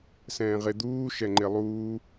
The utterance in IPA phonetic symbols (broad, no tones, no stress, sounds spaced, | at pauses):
s ɛ̃ː ʁ e d̪ uː ʃ ɛ ŋ͡ǃ e lˠ uː